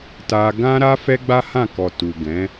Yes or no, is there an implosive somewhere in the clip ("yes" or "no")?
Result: no